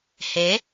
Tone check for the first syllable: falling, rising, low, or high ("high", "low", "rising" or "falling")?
rising